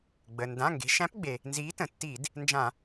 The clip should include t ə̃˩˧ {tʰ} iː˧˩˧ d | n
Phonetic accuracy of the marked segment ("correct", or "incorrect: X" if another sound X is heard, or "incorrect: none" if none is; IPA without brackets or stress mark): incorrect: tː